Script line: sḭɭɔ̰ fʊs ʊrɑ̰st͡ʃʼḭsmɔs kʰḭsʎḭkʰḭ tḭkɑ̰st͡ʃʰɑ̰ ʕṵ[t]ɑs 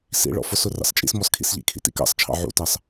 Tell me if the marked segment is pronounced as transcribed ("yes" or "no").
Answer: yes